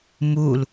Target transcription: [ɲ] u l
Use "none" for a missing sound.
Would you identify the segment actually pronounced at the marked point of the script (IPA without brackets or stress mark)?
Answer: m